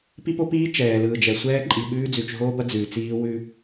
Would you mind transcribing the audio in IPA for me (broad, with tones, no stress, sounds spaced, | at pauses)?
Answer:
p i˦ p o˦ p iː˦ t͡ʃ ɛː˨ l ɯː˨ d͡ʒ ɛ˨ sʷ ɛː˦ ǃʼ i˨ ɓ ʉː˦ d͡z ʉ˨ t͡ʃ ɦ oː˦ b ɐ˦ d͡z ʉː˨ t͡s iː˦ w ʉ˦